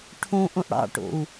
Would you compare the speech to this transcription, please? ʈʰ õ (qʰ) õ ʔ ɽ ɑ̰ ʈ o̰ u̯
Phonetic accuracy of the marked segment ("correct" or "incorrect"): incorrect